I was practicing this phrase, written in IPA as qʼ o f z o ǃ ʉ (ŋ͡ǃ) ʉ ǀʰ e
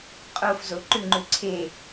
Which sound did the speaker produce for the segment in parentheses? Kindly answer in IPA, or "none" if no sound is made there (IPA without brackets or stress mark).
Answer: ŋ͡ǃ